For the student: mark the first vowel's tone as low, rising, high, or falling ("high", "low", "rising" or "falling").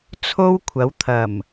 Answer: high